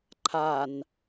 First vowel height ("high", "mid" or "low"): low